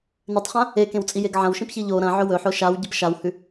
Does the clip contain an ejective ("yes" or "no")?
yes